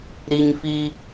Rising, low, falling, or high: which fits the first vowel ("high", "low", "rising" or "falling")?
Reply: low